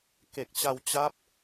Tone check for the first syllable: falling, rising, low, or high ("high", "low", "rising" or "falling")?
low